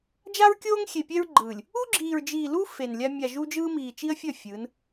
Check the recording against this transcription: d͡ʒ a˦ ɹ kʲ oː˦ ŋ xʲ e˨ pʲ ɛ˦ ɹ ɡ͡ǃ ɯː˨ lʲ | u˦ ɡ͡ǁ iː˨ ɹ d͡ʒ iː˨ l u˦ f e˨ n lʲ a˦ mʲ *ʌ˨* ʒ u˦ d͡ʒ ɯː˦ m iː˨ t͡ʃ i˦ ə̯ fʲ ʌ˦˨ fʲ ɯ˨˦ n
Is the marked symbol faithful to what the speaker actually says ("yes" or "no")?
no